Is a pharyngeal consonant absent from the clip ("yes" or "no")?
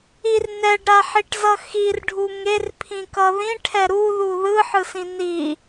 no